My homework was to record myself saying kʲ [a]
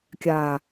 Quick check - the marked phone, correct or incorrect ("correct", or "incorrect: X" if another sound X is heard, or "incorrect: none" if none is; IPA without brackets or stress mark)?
correct